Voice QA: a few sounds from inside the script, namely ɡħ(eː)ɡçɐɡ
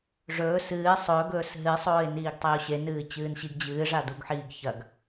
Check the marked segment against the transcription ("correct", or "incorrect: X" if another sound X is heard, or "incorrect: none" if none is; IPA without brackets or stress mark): incorrect: iː